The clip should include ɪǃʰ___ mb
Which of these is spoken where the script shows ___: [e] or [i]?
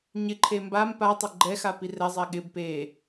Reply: e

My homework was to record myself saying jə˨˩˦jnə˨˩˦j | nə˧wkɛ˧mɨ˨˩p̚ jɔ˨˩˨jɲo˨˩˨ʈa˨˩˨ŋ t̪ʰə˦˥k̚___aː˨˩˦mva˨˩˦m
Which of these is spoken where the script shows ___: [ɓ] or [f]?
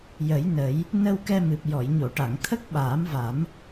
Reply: ɓ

